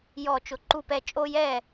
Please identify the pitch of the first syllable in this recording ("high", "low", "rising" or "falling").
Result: falling